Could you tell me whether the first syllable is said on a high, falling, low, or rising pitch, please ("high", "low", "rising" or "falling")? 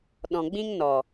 low